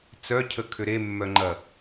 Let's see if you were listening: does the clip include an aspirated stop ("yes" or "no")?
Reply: yes